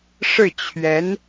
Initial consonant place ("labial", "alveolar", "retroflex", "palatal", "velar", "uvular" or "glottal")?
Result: retroflex